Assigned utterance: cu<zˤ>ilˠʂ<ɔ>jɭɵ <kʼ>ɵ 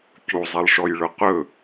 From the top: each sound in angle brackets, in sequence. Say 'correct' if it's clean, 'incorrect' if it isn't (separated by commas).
correct, correct, incorrect